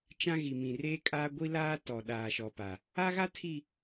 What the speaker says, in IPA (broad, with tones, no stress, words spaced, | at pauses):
t͡ʃã˦ɣi˨mĩ˨ reː˦kʼaː˦ ɡʷi˦ laː˦ tɔ˨ ɗaː˨ʃɔ˨pa˨ | a˦ɣa˦ tʰi˨